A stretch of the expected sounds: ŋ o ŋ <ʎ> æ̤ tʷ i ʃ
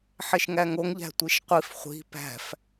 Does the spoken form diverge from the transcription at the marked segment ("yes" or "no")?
no